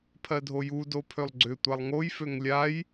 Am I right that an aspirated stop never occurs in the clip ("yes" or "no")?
no